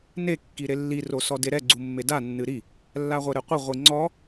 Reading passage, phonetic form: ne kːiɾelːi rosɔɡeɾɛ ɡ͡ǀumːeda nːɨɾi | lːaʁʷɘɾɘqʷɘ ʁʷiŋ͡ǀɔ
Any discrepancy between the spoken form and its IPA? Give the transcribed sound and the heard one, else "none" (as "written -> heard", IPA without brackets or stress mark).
ɡ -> d